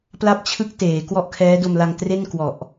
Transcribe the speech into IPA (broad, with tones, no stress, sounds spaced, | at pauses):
p l a˥˩ p̚ t͡ɕʰ ɯ˥˩ k̚ t eː˩˦ k w ɔ˥˩ ʔ kʰ ɛː˦˥ d o˧ m l a˧ ŋ t r e˥˩ n k w ɔ˨˩ ʔ